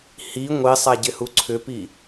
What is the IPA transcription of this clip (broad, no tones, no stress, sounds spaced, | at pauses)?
h i ŋʷ i sˤ a ɟ ɪ h u ǀʰ ʏ p i